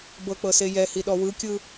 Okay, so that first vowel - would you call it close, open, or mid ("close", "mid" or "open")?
mid